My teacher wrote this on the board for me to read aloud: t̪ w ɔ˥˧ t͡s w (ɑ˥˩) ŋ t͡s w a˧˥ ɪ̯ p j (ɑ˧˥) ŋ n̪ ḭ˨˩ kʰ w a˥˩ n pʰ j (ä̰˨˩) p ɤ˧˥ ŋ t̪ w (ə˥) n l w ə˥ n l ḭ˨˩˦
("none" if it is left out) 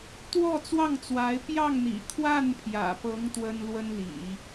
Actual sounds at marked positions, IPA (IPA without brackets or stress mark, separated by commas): ɑ˥˩, ɑ˥˩, ä̰˨˩, ə˥